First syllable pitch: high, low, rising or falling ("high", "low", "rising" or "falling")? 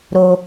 high